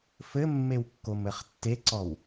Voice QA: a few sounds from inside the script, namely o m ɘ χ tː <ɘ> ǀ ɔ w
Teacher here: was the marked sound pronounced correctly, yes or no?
no